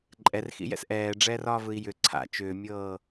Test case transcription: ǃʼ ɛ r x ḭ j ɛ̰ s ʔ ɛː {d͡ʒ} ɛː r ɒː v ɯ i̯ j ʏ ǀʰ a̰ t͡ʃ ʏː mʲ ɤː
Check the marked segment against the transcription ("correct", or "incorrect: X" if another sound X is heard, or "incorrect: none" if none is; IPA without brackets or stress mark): incorrect: ɖ͡ʐ